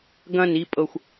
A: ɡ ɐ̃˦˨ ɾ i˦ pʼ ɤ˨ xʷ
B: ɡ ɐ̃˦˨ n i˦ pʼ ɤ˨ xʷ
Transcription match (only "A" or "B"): B